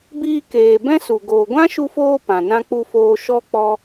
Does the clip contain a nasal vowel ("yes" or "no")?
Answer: yes